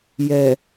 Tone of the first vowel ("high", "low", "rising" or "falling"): low